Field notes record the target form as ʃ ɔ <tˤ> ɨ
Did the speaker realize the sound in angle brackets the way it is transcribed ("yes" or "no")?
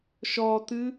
no